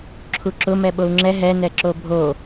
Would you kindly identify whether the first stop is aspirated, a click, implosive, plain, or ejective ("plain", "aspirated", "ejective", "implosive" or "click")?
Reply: click